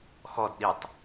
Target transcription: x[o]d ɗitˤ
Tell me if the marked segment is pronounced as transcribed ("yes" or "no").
no